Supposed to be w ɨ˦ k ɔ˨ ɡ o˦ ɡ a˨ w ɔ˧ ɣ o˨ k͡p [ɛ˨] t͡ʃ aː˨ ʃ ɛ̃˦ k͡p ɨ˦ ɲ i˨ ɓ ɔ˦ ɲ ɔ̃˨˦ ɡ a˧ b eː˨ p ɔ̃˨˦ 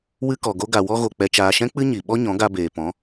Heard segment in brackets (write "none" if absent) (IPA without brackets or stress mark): ɛ˨